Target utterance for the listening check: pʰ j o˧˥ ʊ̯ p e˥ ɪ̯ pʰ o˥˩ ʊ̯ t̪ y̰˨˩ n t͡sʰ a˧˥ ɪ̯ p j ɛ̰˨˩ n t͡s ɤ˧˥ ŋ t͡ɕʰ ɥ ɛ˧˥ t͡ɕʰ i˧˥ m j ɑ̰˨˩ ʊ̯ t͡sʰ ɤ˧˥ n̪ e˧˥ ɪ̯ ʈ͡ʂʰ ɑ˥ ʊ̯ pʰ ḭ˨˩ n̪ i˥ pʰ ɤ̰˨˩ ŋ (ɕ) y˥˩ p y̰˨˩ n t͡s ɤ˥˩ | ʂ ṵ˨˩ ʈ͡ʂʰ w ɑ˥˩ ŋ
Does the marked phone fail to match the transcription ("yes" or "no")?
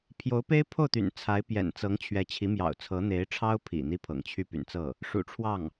yes